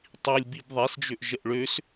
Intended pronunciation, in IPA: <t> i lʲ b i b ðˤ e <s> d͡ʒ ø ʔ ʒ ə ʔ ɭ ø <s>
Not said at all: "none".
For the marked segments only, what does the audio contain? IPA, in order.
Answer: tˤ, s, s

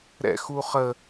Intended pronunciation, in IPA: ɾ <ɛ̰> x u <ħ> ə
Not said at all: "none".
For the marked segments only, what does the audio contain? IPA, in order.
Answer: ɛ̰, χ

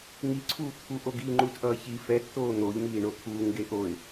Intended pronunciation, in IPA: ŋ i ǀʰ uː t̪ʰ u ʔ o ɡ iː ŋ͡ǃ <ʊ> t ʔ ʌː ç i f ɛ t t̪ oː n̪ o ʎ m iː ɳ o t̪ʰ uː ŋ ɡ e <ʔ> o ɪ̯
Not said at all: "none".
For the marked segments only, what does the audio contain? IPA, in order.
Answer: u, ʔ

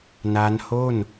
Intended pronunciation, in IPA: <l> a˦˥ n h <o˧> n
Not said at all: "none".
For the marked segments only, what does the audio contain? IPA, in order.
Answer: n, o˥˩

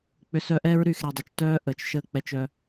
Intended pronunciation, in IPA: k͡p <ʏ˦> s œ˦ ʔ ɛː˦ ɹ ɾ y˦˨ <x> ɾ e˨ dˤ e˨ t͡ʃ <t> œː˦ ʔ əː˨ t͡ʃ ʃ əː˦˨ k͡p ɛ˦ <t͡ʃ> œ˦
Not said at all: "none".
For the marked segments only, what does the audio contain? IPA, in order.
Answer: ʏ˦, x, t, t͡ʃ

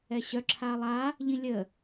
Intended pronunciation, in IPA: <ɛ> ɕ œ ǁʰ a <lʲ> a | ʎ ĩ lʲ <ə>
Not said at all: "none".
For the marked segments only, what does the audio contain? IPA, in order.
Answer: ɛ, lˠ, ə

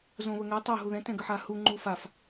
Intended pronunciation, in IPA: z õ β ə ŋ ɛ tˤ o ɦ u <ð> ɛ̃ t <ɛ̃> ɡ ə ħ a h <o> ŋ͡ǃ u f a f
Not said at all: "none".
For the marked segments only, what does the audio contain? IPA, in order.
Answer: ð, ɛ̃, u

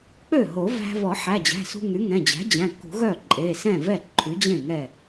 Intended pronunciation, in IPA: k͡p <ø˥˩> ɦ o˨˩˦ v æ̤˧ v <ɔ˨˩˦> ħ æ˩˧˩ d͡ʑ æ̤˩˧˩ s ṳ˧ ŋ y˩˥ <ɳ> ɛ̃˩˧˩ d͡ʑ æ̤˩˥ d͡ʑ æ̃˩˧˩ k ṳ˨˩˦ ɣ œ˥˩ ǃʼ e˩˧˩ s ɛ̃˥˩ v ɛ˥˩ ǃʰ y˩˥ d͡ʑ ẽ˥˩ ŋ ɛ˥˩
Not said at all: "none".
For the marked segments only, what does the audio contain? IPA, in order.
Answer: ø˥˩, ɔ˨˩˦, ŋ

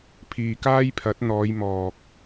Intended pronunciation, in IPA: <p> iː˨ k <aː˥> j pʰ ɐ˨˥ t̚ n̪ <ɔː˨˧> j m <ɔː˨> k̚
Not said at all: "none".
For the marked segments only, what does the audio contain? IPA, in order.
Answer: pʰ, aː˥, ɔː˨˧, ɔː˨

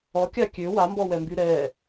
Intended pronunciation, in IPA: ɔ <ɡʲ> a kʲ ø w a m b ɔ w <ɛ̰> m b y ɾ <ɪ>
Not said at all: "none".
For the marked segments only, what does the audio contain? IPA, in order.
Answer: kʲ, ɛ, ɛ

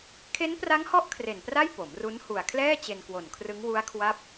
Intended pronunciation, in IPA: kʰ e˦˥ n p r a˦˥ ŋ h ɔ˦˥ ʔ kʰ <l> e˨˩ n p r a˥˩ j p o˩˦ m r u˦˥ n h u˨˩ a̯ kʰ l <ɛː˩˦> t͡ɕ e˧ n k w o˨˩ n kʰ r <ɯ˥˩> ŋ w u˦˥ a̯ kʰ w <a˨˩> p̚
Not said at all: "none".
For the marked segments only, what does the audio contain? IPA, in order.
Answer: r, ɛː˥˩, ɯ˦˥, a˦˥

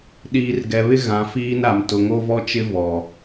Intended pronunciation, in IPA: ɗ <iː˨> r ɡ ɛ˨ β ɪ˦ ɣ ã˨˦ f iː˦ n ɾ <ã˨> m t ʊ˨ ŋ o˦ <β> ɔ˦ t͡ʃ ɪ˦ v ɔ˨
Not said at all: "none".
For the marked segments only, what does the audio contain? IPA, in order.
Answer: iː˨, a˨, v

